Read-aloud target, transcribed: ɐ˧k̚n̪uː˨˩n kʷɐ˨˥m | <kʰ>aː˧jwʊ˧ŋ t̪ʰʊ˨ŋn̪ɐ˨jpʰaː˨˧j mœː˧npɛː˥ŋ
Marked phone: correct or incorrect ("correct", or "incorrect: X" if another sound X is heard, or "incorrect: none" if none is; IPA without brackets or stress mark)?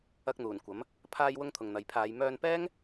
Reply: incorrect: pʰ